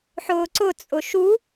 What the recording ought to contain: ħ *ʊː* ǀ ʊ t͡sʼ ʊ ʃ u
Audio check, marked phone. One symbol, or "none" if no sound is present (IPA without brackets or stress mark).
ʊː